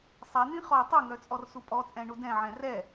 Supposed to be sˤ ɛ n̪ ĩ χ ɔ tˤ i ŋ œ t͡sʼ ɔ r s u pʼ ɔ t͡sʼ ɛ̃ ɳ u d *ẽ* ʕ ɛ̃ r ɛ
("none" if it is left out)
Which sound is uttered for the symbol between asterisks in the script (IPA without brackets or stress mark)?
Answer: ɛ̃